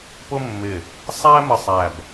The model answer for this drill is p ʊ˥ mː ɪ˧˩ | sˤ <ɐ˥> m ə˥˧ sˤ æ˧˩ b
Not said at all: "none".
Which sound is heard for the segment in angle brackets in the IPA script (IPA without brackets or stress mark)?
æ˥